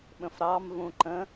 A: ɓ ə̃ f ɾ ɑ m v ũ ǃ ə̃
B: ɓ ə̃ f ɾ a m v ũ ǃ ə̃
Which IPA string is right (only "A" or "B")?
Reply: A